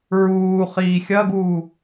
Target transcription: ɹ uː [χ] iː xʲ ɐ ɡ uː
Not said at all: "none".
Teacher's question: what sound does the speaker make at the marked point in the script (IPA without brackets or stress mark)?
χ